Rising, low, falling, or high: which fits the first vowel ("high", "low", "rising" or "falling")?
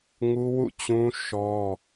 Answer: high